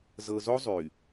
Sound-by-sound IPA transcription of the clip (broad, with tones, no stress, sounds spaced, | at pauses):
z ɤ˨ z o˦ zˤ y˨